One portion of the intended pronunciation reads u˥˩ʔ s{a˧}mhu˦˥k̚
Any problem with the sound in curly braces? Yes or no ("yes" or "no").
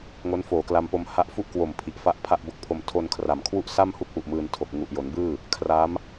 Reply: yes